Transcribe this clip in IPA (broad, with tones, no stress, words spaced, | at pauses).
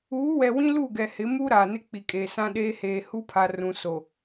uː˨˦wɛ˨wĩ˦ lu˦˨ɡɛ˨hɪ˨˦mu˦ ɾaː˨nɪ˦k͡pi˨kʼeː˨ sã˦ɗeː˦ heː˨hu˦pʰa˨ rũ˨so˨